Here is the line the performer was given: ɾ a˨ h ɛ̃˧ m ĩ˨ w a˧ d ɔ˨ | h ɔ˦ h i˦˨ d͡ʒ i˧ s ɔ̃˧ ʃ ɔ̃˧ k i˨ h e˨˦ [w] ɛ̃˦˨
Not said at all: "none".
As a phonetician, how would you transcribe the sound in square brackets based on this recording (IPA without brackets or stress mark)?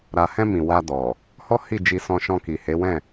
w